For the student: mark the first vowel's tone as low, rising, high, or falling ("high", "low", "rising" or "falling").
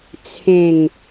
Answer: low